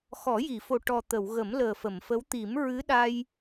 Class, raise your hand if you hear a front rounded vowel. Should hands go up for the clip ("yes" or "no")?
no